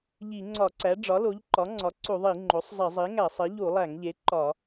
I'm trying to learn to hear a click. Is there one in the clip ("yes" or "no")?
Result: yes